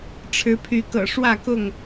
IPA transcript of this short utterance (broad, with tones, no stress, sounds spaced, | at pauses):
ʈ͡ʂʰ ɻ̩˨˦ pʰ y˨˦ k ɤ̰˨˩ ʂ w ä˥˨ k ʊ˥˨ ŋ